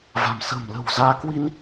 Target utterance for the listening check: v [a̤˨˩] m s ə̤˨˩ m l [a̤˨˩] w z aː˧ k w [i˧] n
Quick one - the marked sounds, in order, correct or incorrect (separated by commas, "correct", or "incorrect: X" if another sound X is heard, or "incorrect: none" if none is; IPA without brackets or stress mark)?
correct, incorrect: ə̤˨˩, correct